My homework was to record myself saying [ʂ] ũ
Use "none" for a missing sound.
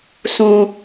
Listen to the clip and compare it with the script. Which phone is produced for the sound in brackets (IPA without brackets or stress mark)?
s